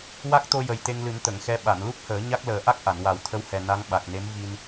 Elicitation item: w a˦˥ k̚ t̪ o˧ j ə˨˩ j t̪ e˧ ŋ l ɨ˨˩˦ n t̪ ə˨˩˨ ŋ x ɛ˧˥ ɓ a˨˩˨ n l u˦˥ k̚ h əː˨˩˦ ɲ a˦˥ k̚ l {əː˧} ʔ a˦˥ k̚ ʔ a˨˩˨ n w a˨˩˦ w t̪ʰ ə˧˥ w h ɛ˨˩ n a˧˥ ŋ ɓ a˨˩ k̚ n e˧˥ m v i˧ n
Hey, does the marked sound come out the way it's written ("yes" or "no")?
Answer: no